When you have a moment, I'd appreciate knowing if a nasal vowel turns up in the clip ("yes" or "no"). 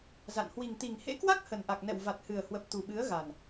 no